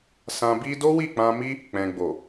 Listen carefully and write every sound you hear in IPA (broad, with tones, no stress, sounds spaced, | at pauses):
s ã˧ b i˦ d o˦ w i˦˨ k͡p ã˧ m i˦ | k͡p ɛ̃˨ ɡ͡b o˨